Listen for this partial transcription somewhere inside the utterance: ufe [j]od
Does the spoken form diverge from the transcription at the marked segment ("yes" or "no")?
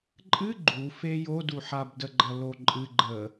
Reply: no